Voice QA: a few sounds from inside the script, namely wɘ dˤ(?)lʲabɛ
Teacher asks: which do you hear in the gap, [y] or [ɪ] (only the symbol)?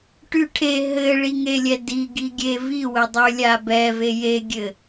y